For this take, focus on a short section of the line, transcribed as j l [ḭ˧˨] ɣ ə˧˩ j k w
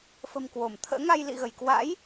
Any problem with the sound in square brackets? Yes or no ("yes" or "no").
no